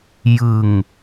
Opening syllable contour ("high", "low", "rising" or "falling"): low